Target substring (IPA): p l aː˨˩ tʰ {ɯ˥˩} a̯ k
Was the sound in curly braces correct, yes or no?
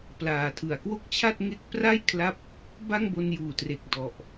no